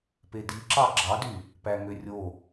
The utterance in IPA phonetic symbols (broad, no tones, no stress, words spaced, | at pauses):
pediǁɑ ɡ͡ǁɑdy | pæŋørʲo